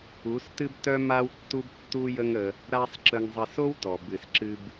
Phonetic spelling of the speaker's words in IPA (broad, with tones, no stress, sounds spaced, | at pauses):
u˨˦ s t ɨ˦ b t œ˦ m a˦ w tː u˦ b tː u˦ j ə˦ ŋ ə˧ | ɾ a˦ sˤ ǁ ə˧ ŋ zˤ ə˧ s o˦ w t ɔ˨ b ɨ˨ s ǁ ɨ˧ b